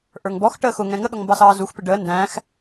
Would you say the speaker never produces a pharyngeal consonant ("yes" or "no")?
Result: yes